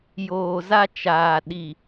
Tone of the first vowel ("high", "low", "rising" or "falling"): low